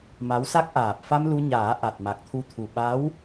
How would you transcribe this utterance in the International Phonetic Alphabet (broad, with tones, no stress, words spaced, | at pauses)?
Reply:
ma˧˥wsa˦˥k̚ ʔaː˨˩p̚fa˧m lu˧ɲaː˨˩˦ ʔa˨˩t̚ma˨˩k̚t̪ʰu˧t̪ʰu˨˩ ɓa˧˥w